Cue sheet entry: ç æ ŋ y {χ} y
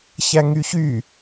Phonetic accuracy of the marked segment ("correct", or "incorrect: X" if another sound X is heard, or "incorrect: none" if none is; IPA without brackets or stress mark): incorrect: ç